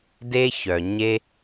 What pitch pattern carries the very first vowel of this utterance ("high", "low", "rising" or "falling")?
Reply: high